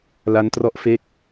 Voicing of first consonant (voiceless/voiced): voiced